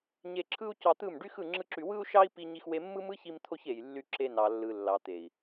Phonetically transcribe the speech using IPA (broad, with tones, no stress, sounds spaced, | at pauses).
ɲ e˧ ǁʰ ɯ˦ u̯ c ɑ˧ t̪ ɯ˦˨ m ɖ y˦ x ɯ˦˨ ŋ͡ǁ ɯ˦ ǁ y˧ w ɯ˦ u̯ ʃ ɑ˦ i̯ p i˦ ɲ i˦ x w e˦ mː ɯ˦ m ɯ˦ ç i˧ m t̪ʰ o˧ ç e˨ j lː y˧ ǁ e˧ n ɑ˨ lː ɯ˨ lː ɑ˨ t̪ e˨ i̯